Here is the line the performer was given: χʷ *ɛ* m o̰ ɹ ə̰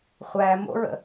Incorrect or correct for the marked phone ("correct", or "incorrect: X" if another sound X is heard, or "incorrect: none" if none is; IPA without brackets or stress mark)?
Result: incorrect: æ